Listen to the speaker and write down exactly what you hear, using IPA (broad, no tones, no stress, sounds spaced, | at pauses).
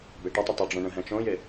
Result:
b e ʈ ə tˤ ɪ tˤ ʏ ɖ͡ʐ õ ɳ ə̃ ɦ ɛ̃ t͡ʃ õ j ɪ